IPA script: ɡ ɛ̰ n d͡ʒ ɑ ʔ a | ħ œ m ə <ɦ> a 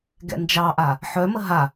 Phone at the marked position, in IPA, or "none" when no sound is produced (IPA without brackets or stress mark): ɦ